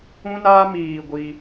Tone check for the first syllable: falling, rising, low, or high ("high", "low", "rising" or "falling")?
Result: high